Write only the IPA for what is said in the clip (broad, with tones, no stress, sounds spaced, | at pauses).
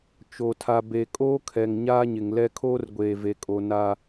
t͡ʃ o˨ tʰ a˨ b e˨ kʼ oː˦ kʰ ɛ˨ ŋ ɲ aː˦ ɲ ɪ˨ ŋ l ɛ˦ kʰ oː˦ r ɡʷ eː˨ v e˨ kʼ o˨ n a˦